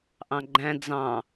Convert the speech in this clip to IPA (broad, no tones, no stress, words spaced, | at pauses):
ʔɑ̃ɡ͡ǃæ̃ d͡zɑ̃